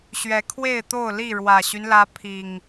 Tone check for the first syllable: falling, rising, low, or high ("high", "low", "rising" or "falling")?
rising